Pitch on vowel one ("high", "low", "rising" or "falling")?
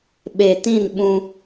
low